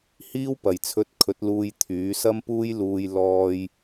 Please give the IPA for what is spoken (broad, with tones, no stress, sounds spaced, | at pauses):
h iː˥ w p ɐ˨ j t͡sʰ ɵ˧ t̚ kʰ ɵ˨˥ t̚ l uː˧ j t̪ʰ yː˨˥ s ɐ˥ m p uː˥ j l uː˧ j l ɔː˧ j